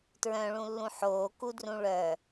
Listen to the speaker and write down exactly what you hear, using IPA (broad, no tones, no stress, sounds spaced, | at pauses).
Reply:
t ɹ œ̃ ɭ ũ lː ũ ħ oː k u d r ũ ɭ œ